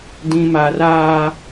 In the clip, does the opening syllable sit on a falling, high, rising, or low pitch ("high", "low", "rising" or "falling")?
high